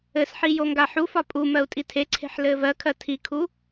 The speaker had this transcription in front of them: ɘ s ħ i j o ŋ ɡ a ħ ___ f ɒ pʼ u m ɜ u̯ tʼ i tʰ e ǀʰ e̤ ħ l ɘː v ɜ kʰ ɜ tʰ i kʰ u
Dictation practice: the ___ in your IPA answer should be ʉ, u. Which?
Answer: u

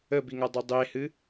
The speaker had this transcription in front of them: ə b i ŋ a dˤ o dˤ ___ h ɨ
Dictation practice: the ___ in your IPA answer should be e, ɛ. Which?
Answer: e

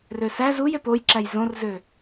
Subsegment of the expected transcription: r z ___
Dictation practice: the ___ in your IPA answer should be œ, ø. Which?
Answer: ø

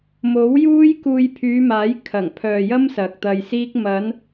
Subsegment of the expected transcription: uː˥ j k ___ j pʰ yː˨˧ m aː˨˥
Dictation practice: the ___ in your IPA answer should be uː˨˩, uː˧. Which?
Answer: uː˧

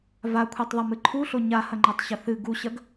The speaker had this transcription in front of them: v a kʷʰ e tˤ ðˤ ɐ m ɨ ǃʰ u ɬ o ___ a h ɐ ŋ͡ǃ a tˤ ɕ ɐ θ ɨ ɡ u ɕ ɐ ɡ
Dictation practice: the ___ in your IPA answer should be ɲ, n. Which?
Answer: ɲ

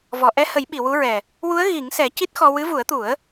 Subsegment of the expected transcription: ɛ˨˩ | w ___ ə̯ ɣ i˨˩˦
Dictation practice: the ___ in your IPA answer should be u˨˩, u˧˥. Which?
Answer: u˧˥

